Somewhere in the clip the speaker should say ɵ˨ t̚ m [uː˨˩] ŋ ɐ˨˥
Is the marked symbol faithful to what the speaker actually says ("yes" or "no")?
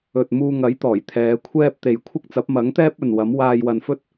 no